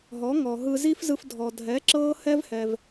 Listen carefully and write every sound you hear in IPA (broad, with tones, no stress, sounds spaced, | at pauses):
ɦ ɔ˩˥ ŋ ɔ˩ ɦ ɯ˧ z i˥ f z ɯ˧ f dʱ ɔ˩ dʱ ɛ˩˥ ǁ ɤː˥ h ɛ˥ v h ɛ˩ v